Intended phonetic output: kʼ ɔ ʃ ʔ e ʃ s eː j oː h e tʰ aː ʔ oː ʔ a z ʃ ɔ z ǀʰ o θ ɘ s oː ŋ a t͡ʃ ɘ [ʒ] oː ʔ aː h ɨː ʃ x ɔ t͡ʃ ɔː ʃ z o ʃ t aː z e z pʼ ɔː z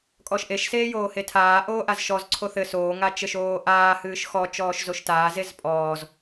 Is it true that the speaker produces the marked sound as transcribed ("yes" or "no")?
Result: no